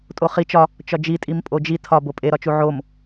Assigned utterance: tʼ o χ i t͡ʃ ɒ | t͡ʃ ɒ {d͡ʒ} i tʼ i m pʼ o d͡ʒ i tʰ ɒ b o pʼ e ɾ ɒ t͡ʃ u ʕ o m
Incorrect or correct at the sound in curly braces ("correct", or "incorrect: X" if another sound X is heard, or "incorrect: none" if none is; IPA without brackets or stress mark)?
correct